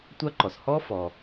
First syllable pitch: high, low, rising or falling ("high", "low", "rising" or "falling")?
high